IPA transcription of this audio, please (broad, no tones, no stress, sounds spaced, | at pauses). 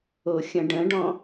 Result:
o xʲ ə̃ ɖ ə̃ ɖ ɔ̃